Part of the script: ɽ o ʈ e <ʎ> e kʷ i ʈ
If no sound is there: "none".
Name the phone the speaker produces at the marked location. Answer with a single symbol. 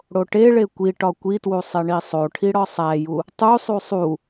ɭ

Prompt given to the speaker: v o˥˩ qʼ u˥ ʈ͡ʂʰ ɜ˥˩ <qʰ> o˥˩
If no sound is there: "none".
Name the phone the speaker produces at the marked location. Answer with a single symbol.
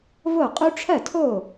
tʰ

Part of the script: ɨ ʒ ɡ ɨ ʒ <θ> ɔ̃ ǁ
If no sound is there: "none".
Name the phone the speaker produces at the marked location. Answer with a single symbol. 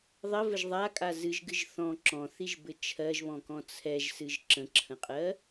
θ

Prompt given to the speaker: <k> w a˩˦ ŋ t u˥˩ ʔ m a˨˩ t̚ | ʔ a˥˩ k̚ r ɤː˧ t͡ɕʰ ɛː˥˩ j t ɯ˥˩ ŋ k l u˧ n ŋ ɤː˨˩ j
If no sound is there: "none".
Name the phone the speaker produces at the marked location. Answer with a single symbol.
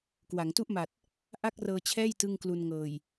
k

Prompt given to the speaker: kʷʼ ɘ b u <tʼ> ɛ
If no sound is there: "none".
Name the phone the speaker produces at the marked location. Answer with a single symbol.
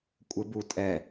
tʼ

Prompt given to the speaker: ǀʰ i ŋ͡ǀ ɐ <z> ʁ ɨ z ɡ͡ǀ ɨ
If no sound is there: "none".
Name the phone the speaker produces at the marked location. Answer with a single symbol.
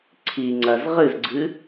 z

